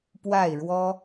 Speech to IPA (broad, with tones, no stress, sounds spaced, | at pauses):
p w a˥˨ ɪ̯ ɻ w ɔ˦